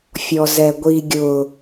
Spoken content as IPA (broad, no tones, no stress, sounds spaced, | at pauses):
fʲ ɔ z ɛ ɡʷ i ɡʲ ʊ